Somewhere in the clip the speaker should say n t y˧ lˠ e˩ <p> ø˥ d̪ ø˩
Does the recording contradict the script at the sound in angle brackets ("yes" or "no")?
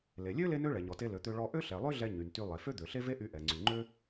yes